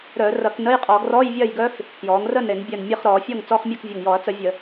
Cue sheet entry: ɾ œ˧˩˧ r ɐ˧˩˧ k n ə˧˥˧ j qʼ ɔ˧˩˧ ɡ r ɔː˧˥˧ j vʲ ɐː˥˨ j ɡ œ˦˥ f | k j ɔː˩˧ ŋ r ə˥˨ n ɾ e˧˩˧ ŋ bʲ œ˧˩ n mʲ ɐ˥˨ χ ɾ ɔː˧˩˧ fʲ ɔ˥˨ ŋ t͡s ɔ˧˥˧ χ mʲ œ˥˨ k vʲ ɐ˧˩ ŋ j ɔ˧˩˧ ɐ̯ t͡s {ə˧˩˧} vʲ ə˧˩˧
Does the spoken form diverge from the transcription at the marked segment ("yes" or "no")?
no